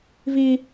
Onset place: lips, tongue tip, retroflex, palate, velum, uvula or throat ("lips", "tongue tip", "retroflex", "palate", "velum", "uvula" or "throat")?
lips